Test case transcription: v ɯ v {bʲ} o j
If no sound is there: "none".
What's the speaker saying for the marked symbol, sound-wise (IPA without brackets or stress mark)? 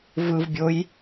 bʲ